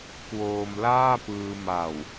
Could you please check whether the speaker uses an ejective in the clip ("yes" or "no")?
no